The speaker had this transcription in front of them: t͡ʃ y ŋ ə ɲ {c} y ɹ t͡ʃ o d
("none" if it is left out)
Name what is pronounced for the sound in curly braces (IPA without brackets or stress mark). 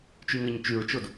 t͡ʃ